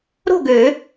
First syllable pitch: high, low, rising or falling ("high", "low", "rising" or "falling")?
falling